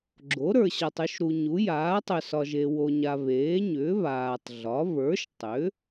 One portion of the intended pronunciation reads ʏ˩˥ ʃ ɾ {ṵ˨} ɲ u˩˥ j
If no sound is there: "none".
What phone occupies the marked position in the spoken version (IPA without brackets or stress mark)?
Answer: u˨